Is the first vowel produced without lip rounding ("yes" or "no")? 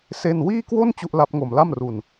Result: yes